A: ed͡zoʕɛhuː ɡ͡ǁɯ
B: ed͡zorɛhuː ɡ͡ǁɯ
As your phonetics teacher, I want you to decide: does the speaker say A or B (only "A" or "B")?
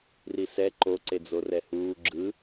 B